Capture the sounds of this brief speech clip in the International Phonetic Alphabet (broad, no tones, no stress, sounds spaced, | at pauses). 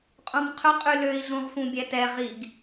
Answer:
qʼ ũ m qʰ ʏ qʼ y l ø i̯ ɮ ũ ʁ f ũ bʲ ɛ t ɛ ʁ i ɡ